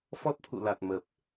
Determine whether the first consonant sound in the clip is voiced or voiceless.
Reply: voiceless